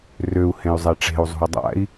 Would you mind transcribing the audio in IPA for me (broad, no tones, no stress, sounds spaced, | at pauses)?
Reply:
r ø u̯ h ẽ y̯ zˤ ɛ ʈ͡ʂ e̤ u̯ zˤ ṳ i̯ dˤ a̰ i̯